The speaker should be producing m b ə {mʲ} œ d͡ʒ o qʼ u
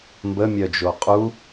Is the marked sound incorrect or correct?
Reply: correct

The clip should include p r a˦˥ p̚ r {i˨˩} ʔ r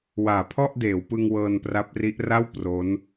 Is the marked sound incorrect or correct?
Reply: incorrect: i˦˥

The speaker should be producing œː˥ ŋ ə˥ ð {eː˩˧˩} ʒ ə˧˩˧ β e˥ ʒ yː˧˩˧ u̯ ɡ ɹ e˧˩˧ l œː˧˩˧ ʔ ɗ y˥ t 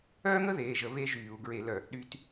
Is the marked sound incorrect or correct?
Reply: correct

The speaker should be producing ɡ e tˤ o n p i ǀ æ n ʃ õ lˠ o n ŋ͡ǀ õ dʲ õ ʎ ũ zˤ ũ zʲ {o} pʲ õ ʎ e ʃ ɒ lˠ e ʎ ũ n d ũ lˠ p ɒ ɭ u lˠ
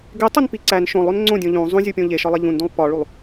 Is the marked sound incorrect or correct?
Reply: incorrect: u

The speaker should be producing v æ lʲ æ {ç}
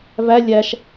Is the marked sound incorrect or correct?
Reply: incorrect: ʃ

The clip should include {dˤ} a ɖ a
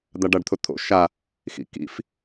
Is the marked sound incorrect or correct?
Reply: incorrect: d̪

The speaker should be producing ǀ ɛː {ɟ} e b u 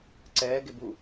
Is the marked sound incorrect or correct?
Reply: incorrect: ɡ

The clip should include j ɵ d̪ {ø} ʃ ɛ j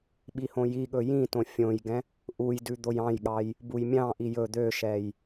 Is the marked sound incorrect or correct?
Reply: correct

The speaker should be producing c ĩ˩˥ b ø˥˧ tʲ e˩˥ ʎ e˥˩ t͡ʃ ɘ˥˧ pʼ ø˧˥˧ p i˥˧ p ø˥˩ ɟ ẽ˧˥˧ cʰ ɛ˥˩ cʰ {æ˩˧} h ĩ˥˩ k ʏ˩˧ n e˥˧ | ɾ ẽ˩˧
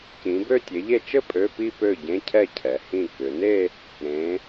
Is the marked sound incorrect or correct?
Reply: incorrect: ɛ˩˧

